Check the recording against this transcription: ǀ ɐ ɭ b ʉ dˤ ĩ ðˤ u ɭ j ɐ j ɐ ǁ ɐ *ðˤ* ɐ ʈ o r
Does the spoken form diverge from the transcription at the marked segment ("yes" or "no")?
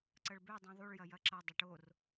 yes